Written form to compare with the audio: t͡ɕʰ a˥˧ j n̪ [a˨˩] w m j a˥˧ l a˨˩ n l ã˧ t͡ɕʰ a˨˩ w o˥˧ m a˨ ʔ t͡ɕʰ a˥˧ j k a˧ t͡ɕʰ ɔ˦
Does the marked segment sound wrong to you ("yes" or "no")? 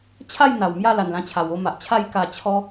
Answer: no